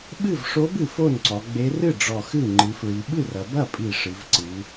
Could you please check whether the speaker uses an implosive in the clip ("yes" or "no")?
yes